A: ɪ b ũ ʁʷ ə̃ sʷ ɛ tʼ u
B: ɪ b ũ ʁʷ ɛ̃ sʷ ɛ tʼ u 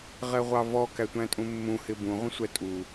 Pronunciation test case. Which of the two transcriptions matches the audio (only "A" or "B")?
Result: A